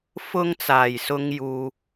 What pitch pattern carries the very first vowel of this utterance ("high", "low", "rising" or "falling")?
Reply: high